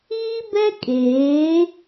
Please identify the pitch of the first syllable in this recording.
high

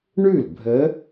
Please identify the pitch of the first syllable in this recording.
falling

